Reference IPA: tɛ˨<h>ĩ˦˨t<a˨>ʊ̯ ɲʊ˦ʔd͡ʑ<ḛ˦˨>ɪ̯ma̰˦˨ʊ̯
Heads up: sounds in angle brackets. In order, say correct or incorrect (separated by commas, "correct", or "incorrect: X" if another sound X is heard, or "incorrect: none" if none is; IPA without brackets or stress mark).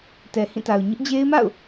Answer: correct, correct, incorrect: e˦